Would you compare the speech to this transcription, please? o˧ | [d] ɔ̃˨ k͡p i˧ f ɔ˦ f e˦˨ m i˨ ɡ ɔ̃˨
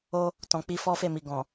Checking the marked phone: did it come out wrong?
yes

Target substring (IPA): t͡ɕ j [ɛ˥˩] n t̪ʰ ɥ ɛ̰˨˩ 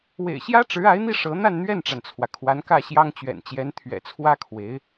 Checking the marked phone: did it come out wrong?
yes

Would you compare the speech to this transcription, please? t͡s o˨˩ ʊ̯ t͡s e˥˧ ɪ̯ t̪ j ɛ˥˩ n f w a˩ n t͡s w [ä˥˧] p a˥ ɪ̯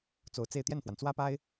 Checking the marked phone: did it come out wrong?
yes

